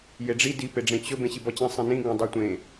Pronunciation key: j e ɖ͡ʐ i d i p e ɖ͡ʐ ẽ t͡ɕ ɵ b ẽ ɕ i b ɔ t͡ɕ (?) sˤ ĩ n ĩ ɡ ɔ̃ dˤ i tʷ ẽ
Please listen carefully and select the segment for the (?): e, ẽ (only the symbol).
ẽ